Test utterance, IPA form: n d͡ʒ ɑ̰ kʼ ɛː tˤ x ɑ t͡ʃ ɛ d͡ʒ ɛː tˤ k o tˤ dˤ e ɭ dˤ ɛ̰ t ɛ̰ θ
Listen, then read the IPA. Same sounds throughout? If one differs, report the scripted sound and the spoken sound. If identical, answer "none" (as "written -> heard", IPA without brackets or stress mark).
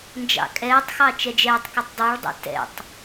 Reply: θ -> tˤ